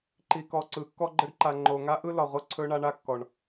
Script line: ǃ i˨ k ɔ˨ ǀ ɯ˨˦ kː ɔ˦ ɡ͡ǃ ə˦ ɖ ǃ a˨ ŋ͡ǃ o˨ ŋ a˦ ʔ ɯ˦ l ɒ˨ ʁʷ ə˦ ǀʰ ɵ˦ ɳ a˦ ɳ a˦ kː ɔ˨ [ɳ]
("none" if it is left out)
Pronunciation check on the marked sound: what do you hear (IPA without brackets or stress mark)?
ɳ